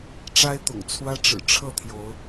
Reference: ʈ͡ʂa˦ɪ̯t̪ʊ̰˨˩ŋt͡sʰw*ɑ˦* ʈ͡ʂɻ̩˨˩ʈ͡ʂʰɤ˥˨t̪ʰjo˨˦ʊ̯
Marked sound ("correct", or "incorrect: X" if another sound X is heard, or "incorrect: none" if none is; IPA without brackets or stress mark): incorrect: ä˦